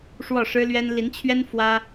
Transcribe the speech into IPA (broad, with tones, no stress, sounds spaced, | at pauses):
ʂ w ɔ˥˩ ʂ ɻ̩˥ l ɥ ɛ˥ n l i˧˥ n t͡ɕʰ ɥ ɛ˥ n f w ä˥